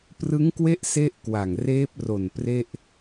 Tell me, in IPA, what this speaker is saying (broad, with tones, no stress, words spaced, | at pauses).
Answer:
prɯ˦˥ŋkwe˦˥ʔ se˥˩ʔ kwa˨˩ŋreː˦˥p̚ ro˨˩n pre˥˩ʔ